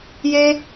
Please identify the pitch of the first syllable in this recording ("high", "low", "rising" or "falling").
high